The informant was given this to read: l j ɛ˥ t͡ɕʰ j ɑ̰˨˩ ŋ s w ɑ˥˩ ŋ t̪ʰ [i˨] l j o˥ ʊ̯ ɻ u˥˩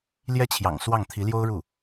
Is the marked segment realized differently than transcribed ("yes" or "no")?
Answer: yes